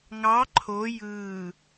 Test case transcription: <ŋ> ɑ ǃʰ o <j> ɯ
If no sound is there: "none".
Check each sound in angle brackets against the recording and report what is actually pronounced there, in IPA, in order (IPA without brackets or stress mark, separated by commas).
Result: ŋ, j